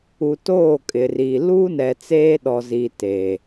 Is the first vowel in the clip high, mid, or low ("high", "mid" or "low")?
high